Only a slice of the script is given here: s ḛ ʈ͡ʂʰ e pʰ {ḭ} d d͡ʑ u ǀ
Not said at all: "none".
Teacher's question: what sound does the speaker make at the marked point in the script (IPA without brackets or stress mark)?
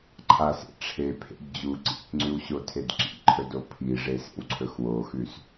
ḛ